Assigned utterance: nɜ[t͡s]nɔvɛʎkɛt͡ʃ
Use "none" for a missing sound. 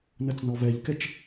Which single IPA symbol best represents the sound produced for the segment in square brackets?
t͡s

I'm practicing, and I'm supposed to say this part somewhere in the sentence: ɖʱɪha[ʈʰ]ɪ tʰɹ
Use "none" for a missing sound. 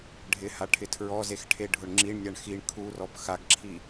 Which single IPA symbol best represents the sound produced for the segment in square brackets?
ʈʰ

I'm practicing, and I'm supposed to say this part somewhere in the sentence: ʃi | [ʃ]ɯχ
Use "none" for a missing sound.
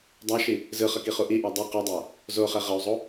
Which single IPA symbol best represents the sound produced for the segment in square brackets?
z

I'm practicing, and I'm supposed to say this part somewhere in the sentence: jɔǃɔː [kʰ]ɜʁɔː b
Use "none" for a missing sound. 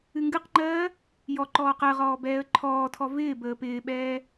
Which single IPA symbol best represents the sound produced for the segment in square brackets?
q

